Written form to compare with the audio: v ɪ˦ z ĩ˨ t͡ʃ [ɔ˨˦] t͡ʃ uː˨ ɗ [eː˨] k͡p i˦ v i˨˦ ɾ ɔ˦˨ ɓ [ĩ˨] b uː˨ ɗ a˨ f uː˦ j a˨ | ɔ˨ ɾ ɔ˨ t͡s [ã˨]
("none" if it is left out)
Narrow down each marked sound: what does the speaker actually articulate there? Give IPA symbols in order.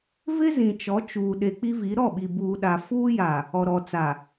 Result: ɔ˨˦, e˨, i˨, a˨

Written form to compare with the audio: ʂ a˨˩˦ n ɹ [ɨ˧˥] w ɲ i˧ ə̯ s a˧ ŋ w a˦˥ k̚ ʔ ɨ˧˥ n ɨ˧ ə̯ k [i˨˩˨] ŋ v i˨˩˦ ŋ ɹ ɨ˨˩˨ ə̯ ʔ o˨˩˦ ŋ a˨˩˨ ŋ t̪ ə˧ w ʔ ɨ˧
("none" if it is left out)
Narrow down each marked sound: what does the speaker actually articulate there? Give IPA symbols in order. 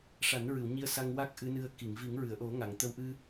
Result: ɨ˨˩˨, i˨˩˨

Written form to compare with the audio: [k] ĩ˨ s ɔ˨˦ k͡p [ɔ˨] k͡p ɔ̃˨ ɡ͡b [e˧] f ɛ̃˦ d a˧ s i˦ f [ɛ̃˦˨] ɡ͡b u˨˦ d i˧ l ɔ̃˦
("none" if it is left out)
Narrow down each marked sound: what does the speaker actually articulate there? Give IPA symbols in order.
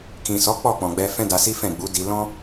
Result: k, ɔ˦˨, ɛ˧, ɛ̃˦˨

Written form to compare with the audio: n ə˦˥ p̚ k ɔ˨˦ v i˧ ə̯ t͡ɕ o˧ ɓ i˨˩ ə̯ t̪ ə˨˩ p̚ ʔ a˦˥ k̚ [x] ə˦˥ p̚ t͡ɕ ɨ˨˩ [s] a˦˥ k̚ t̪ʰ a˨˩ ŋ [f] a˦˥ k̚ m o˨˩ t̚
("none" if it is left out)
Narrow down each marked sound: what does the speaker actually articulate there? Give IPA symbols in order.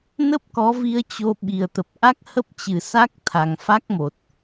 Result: h, s, f

